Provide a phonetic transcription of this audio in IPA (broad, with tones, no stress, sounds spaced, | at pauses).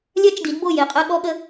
lʲ ɜ˦ t͡ʃ d i˨˦ d b o˦˨ j e˨ qʼ ɜ˦ ɠ ɔ˦ ɠ ə˦